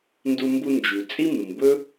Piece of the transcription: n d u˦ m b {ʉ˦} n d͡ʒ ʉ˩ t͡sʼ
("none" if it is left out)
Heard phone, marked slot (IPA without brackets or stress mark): u˦